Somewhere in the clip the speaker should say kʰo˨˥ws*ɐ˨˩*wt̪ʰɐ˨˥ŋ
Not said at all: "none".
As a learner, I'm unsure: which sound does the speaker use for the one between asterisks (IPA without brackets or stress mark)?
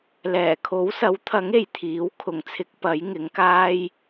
ɐ˨˥